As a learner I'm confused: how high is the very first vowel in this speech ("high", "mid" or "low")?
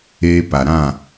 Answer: mid